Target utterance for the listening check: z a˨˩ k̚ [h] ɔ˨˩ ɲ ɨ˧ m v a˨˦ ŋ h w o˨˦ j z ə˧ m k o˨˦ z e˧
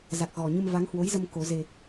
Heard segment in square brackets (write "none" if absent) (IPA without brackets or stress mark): ɣ